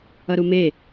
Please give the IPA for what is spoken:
ʌ ɾ u m e

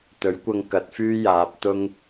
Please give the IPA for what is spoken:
t̪ ɵ˨˥ ɥ kʷ ɐ˧ ŋ k ɐ˨˥ t̚ f yː˥ j aː˨˥ p̚ t̪ ʊ˥ ŋ

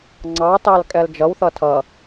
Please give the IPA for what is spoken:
ŋ͡ǀ ɑ t ɑ l kʼ ɛ l d͡ʒ ʌ w θ ʌ tʰ ʌ

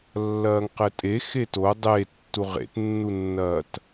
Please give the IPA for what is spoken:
lː ɐː ŋ q ɘ tʼ e x e t o dˤ e tː u ʁ ḛ t nː u nː ɐː t

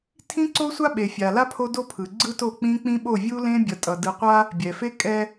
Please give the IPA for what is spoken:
tʰ ĩ˦ ǀ o˦ sʷ a˦ ɓ e˨ fʲ a˨ l a˦ pʰ o˦ d o˦ pʰ ɯ˨ ɡ͡ǀ ɯ˦ t o˦˨ k͡p ĩ˦ k͡p ĩ˦ ɓ o˦˨ vʲ u˦ l ẽ˦ bʲ ʌ˨ tʼ ʌ˨ d ɯ˨ qʷ a˦ | bʲ ɛ˨ f e˦ kʼ ɛ˦

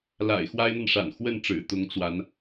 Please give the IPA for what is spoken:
l a̰˨˩ ɪ̯ x w a˥ ɪ̯ n̪ a˨ n ʂ a̰˨˩ n x w ə˥˩ n ʈ͡ʂ ɻ̩˨˩ t̪ ʊ˧˥ ŋ t͡s w a˧˥ n

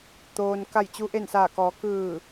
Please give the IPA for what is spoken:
t̪ oː˩ n k a˧˩ j t͡ɕ u˧ ʔ e˧˩ n s aː˧˩ k ɔː˩˧ k ɯː˧˩

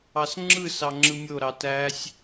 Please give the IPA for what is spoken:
ɑ s ŋ͡ǁ ɯ s ɑ ŋ͡ǁ ɯ mʲ o ɾ ɑ t æ sʲ

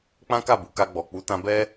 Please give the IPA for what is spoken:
k͡p ã˦ k a˦˨ b u˨ k a˧ ɡ͡b ɔ˨ k͡p u˨˦ t ã˧ b ɛ˦

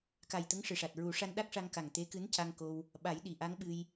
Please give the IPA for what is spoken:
k a˨˩ j t̪ ə˧˥ ŋ ʂ ɨ˨˩ ʂ a˨˩ t̚ ɹ u˨˩˦ ʂ a˧ n ɗ a˦˥ k̚ ʂ a˧ ŋ k a˨˩ ŋ t̪ e˧˥ k ɨ˧˥ n c a˧ ŋ k o˧ w | ɓ a˨˩˦ j ɗ i˨˩˨ ʔ a˧˥ ŋ ɓ ɨ˧ j

